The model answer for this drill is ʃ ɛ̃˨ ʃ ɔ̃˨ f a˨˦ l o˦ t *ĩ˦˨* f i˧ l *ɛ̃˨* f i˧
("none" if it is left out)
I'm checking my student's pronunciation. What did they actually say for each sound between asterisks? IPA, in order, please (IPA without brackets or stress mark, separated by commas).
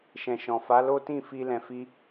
ĩ˦˨, ɛ̃˨